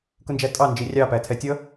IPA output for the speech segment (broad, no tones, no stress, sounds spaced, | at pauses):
k ʊ n d͡ʒ æ tʼ ɑ n d͡ʒ i rʲ ɑ p æ tʰ ɛ tʲ ʌ